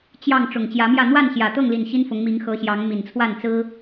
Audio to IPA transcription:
t͡ɕ j ɑ˥˨ ŋ ʈ͡ʂ ʊ˨˩ ŋ t͡ɕ j ä˨˦ m j ä˥˨ n̪ w a˥˨ n ɕ j ä˨˩ t̪ ɤ˥˨ ŋ l i˨˩ n ɕ i˦ n f ʊ˨˦ ŋ m i˨˦ ŋ x ɤ˨˦ ɕ j ɑ˨˦ ŋ m i˨˩ n t͡sʰ w a˥˨ n t͡s ɹ̩˦

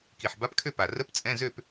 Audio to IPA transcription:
k i˨˩ ħ b a˧˥˧ p kʰ ø˥˩ p a˨˩ r ə˧˥˧ p t͡sʼ ɛ̃˧˥˧ z ø˥˧ p

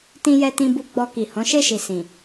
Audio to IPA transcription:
t ĩ˧ j ɛ˧ t ĩ˧ b u˧ ɡ͡b ɔ˧ k i˨ h ɔ̃˨˦ ʃ e˦˨ ʃ i˨ s ĩ˨

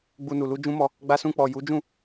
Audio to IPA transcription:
ɡ͡b u˧ n u˨ l u˧ d͡ʒ ũ˦ m ɔ˧ | ɡ͡b a˧ s ũ˧ k͡p ɔ˨ j u˨˦ d͡ʒ ũ˦˨

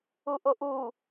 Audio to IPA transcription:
u ʔ o ʔ u

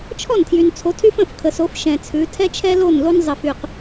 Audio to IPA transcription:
t͡ʃʰ ɔ˦˨ n tʰ j y˨ n t͡sʰ o˨˦ tʰ y˦ f ə̃˦˨ f kʰ ə˨ s o˨˦ f ʃ ɛ̃˨ t͡sʰ ʉ˨˦ tʰ ɛ˦ t͡ʃʰ ɛ˦ l o˦˨ n l o˦ n zˤ ə˨ f y˨ q

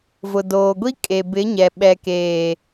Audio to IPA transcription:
v ʊ˨ d oː˨ ɡʷ i˦ kʼ e˨ b ɪ˨˦ ɲ ɛ˨ ɓ ɛ˨ k eː˨

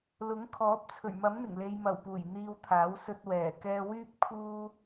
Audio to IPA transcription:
l ʊ˨˥ ŋ kʰ ɔː˨˥ p̚ t͡sʰ ɵ˨˩ ɥ m ɐ˨˥ m n̪ ɪ˨˩ ŋ l e˨ j m ɐ˨˩ w p uː˨˩ j n̪ iː˧ w t̪ʰ aː˨˥ w s ɵ˧ t̚ w ɛː˨˩ k ɛː˧ w yː˥ p̚ kʰ uː˥

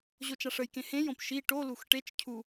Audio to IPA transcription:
ʑ o t͡ʃ a ʂ ə j k ẽ h ẽ j õ p ʃ i ʈ o l u x ʈ e t͡ʃ cʰ u

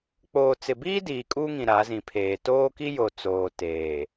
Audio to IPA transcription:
k͡p oː˨ t͡s ɪ˨ b iː˦ d iː˨ kʼ uː˦ ŋ ĩ˨ ɾ a˨˦ z ĩ˨ pʰ eː˨ t oː˦ k i˦ j o˨ t͡s oː˨ t eː˨

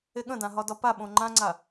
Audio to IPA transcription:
e ɠ ə̃ d ã ɦ ɒ d ɒ p a ɓ õ ŋ͡ǃ ã ŋ͡ǀ a

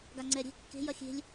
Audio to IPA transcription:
ɡ a ŋ͡ǀ ɛ ɾʲ e̤ kː e̤ j ɐ xʲ e̤ lʲ

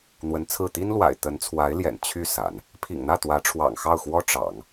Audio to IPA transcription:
n̪ w ə˧˥ n t͡sʰ ɹ̩˥˩ t̪ i˥ n l w a̰˨˩ ɪ̯ t̪ ə˧˥ n t͡sʰ w a˧˥ ɪ̯ l j ɛ̰˨˩ n t͡ɕʰ y˥˩ s a̰˨˩˦ n | pʰ ḭ˨˩ ŋ n̪ ä˥˩ t̪ w ä˧˥ ʈ͡ʂʰ w ɑ̰˨˩ ŋ x ɑ˥˩ ʊ̯ x w ɔ˥ ʈ͡ʂ ɑ̰˨˩˦ ŋ

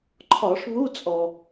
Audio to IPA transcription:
ǃʰ ɒ˧˩˧ ʂ β u˧˥˧ t͡sʼ ɔ˩

